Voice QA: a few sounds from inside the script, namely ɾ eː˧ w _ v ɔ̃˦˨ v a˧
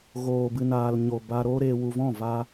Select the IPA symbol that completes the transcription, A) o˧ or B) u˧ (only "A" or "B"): B